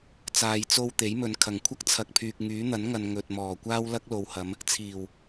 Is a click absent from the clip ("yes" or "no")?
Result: yes